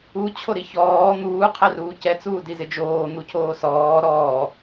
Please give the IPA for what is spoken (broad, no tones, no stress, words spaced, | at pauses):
ut͡ɕʰoɾi çɔː n̪uːqʰɛruː cɛt͡suːdizɪ d͡ʒoːn̪ucʰoː sɔː ɾɔː